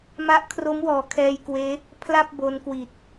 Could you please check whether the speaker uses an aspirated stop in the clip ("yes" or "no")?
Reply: yes